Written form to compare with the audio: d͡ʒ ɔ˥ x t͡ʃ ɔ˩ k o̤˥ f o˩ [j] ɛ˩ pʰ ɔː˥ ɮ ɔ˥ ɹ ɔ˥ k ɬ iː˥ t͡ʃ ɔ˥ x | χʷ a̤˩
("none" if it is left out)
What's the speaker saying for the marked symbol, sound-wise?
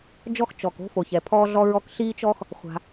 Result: ç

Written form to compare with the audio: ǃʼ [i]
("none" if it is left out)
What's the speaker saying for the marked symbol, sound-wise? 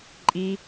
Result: i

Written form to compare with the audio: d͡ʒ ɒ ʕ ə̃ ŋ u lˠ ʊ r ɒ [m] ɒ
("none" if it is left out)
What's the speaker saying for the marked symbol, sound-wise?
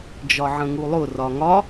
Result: ŋ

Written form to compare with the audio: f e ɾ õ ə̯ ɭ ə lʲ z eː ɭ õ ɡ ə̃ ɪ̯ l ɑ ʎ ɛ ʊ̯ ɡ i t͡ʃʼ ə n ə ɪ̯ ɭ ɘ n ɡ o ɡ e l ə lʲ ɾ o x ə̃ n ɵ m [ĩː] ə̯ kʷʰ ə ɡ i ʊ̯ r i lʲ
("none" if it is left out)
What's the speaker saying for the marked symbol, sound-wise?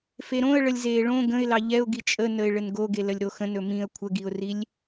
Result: ĩ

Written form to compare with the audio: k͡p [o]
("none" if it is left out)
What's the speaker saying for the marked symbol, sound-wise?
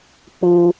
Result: u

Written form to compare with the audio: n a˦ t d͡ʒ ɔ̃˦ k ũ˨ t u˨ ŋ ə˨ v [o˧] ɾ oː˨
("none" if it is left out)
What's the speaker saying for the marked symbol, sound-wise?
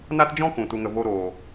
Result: o˧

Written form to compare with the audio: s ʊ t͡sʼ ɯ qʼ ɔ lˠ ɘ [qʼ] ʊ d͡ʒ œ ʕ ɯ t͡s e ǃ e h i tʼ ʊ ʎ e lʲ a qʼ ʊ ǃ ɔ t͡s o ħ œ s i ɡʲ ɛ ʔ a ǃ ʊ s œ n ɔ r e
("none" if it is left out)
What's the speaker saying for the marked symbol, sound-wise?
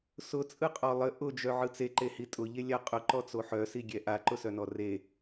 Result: ʔ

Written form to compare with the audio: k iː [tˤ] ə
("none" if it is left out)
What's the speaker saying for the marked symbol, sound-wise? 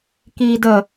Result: d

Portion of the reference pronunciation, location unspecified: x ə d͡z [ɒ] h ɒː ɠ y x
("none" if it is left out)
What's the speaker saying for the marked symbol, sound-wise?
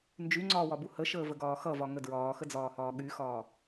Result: ɒː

